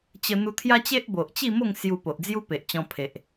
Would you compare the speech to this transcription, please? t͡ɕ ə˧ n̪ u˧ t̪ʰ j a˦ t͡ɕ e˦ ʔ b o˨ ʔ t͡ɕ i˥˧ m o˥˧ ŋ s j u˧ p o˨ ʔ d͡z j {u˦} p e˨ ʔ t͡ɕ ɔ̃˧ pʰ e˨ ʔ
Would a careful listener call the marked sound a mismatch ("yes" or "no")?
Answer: no